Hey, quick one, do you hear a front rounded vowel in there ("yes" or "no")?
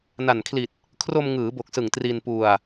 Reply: no